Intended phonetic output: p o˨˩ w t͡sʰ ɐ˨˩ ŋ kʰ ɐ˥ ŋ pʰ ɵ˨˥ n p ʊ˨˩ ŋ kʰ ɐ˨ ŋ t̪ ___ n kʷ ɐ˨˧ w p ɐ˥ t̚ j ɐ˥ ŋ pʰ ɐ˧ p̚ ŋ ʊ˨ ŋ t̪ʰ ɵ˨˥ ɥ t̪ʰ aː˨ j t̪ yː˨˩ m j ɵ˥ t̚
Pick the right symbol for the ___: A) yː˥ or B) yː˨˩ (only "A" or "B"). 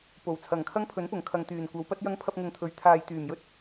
B